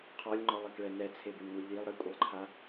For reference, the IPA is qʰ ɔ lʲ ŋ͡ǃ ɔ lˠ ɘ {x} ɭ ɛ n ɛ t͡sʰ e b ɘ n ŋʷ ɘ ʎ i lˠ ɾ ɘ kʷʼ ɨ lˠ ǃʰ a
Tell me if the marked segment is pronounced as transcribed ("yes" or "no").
no